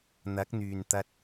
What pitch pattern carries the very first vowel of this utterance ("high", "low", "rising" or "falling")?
rising